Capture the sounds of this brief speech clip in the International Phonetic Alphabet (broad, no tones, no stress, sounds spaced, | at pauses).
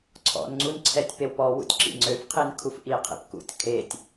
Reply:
ǀʰ ɔ̰ n ŋ͡ǀ u n ǀʰ ɛ tʲ p e w p ɔ w ṵ tʲ ǁ ḭ ŋ͡ǀ ø f qʰ i n kʰ u f ʔ i qʰ ḭ p k ṵ tʲ kʰ e tʲ